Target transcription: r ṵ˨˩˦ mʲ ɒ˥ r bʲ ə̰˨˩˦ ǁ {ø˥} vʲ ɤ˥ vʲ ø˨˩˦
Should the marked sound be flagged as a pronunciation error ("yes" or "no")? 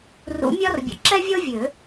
yes